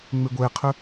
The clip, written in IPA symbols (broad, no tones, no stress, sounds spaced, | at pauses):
ŋ͡m e ɡʷ ɛ qʰ ɵ